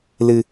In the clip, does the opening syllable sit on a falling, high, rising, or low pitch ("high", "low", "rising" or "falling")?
low